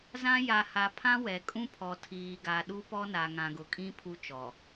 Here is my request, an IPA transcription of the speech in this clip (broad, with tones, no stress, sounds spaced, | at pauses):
z ã˦ j a˨ h a˨ pʰ ã˦ w ɛ˨ kʼ ũ˦ pʰ ɔ˨ tʰ iː˨ ɡ a˨ ɗ u˦ p ɔ˦ n a˨ ŋ ã˨ ɡ ʊ˨ kʼ ĩ˦ pʰ u˦ t͡ʃ ɔ˨